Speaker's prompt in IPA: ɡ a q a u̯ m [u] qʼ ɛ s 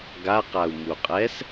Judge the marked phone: correct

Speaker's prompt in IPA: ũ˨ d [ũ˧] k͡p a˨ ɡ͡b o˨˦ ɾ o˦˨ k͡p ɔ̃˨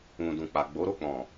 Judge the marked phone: incorrect: ũ˨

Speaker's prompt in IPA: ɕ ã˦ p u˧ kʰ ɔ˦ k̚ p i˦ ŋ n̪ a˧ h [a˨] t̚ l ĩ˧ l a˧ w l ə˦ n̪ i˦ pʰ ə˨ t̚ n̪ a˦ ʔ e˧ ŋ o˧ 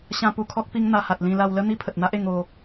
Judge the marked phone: correct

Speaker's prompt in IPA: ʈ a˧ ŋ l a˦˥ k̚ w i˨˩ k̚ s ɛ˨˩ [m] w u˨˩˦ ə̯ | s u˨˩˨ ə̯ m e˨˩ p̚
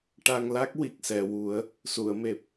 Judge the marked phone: incorrect: none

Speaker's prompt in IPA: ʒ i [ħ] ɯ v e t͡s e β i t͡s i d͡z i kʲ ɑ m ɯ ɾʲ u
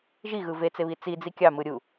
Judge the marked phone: incorrect: ɣ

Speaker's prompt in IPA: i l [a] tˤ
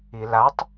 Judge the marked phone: correct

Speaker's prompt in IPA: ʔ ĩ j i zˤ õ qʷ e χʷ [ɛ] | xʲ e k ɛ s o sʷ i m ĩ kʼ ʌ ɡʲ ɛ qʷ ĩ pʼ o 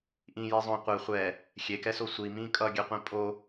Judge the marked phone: correct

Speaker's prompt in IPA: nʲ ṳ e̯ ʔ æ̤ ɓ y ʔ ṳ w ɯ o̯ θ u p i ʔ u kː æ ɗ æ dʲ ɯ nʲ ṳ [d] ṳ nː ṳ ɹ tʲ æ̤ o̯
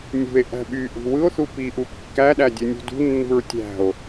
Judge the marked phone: correct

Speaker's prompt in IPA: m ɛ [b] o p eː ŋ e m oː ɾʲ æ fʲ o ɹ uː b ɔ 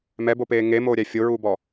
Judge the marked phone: correct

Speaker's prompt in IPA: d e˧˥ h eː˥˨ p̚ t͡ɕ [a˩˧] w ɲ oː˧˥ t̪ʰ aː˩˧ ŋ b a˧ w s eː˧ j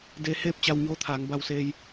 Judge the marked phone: incorrect: a˧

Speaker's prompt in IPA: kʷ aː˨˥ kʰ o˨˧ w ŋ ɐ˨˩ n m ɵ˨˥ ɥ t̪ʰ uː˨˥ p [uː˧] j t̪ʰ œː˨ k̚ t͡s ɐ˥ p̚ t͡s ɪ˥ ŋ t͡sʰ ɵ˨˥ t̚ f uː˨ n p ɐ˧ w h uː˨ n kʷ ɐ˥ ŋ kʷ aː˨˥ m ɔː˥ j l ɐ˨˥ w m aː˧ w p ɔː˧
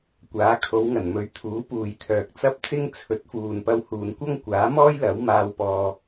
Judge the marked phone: incorrect: uː˨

